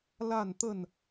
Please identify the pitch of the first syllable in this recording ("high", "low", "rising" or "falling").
falling